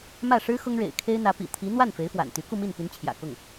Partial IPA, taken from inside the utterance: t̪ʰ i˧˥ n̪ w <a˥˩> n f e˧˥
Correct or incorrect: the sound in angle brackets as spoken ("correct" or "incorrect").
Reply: correct